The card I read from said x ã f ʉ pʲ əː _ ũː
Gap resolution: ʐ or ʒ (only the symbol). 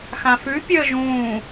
ʒ